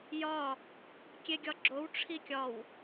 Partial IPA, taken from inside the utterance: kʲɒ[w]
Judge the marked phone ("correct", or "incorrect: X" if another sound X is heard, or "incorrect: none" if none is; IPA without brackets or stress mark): correct